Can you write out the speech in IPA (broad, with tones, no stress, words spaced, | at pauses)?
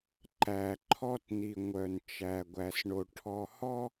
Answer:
ǃæ˨ǃʰɔ˦tni˨ ŋʷœ˨n t͡ʃæ˨ɡʷæ˨sɳo˨ ʈʰɔ˨hɔ˦